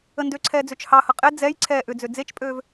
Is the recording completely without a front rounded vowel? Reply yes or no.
no